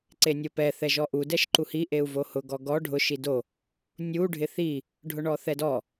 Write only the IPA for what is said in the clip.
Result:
ǀenʲopɛ θɛʒɔʔu dɛʃǃuhi ʔeu̯vohʊ ɡɔɡɔ ɖʱʊ ʃido | nʲu ɖʱɪθi | ɖʱʊɳɔθɛdɔ

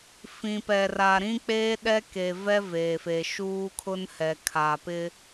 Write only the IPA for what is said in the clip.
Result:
fĩ˨pɛ˨ra˨ ɾĩ˦k͡peː˦ ɗɛ˦ke˨vɛ˦ veː˨fe˨ ʃuː˦kʰʊ˦nhɛ˨ kʰa˨pɪ˦

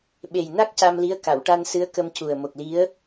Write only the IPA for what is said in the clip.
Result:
ɓe˨˩jna˦˥k̚ ca˧mli˧˥ə̯ ka˨˩˨wʈa˧nsɨ˧˥ə̯kə˧m cu˨˩ə̯ mo˨˩k̚li˧˥ə̯

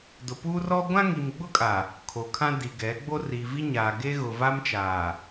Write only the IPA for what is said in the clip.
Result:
dʊ˨puː˦rɔ˦ ɡʷã˦ŋi˨mɡ͡bʊ˦kʼa˨ | kʰo˨kʰã˦di˨ɡɛ˨˦ ɡ͡bo˦ri˨ vi˦ɲaː˨ɡe˦ ɣʊ˨ va˦mt͡ʃaː˨

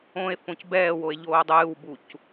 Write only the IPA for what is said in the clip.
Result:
õe̯fõc bɛːwoe̯ ʎoːdˤɨːwbuc

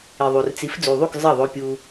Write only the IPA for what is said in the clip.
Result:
i˨ðˤu˨r t͡si˨˦f d͡zu˨ðˤu˦˨k zˤɜ˦˨ðˤo˧pʲu˧

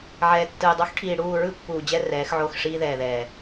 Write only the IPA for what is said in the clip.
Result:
ʕɛː˨tːɯ˨jdˤo˦x ʈʰiː˨ ɽuː˦˨ ɹɯ˦pːuː˨ d͡ʑɛ˦ rɛː˨˦xʕo˦˨x ʂiː˦ðɛː˨ðɛː˨

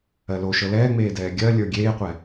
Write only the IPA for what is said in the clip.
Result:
ɜloʃɤ lɛːŋ͡meːdɛː ɡʲɜlʲə˞ ɡʲeːqʷɛ

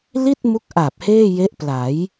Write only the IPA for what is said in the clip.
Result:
li˥˩t̚mu˦˥k̚ʔa˨˩p̚ heː˥˩je˦˥ʔpla˩˦j

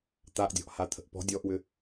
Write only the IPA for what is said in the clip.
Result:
t̪aʔdʲɔ̤ʔ hat̪ʰə̤ʔpɔ̤ dʲɔʔwʏ

